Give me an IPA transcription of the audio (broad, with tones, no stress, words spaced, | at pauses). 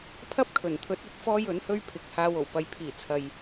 pʰɐ˥p̚kʰɵ˨˩nt̪ʰɵ˨˥t̚ ɵ˨˥t̚fɔː˥jɵ˨˥nhɵ˥ɥ pʰɪ˨k̚ haː˧wo˨˩w pɐ˨jpʰiː˨˩ t͡sʰɐ˨j